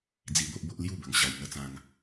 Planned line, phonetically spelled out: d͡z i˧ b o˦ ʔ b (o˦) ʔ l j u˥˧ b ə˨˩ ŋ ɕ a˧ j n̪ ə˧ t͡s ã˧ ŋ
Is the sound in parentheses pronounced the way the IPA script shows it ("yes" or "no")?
yes